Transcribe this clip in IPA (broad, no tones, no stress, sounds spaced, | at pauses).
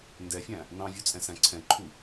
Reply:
n d ɛ fʲ æ̃ | n ɑ̃ vʲ u t͡sʼ ɛ̃ s æ̃ ǀʰ ɛ̃ ǃʰ u